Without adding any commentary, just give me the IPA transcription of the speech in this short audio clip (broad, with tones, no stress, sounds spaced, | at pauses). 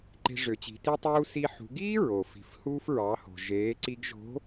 ǃ e̤˧ ʐ ø˩˧ t͡ɕ i̤˩˧ t i˧ tˤ uː˧ s i˧ ħ ṳ˩˧ ɡ iː˥ ɹ o˩ f i̤˩˧ f h uː˧ f ɹ ɑ˩˧ h o̤˩ ʒ eː˩˧ ǀ i˧ ɡ ʒ o̤˧˥